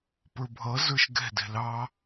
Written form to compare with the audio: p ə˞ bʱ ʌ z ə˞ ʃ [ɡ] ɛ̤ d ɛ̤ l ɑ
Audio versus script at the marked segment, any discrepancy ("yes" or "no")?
no